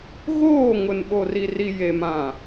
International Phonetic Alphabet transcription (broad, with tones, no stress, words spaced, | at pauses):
ɣoː˦˨ŋʊ˨n ɓo˨ri˨ri˨ je˨mã˨